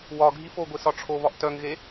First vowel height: low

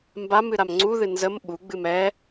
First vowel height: low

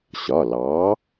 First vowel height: low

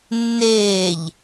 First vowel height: mid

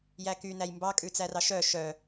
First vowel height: low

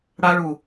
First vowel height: low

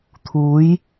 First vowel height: high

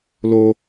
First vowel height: mid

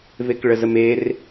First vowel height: mid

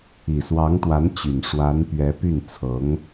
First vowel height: high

